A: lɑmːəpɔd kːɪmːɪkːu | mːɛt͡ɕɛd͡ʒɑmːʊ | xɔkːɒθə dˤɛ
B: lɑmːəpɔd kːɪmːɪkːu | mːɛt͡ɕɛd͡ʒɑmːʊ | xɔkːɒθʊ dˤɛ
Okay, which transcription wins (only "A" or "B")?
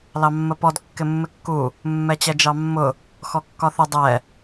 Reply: B